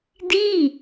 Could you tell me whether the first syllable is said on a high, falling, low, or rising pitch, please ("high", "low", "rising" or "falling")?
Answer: falling